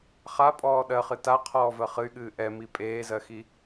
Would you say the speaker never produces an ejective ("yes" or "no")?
no